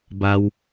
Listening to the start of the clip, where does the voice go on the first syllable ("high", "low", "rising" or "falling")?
high